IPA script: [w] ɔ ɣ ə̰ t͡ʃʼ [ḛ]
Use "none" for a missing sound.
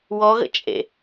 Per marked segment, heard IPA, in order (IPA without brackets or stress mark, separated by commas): w, ḛ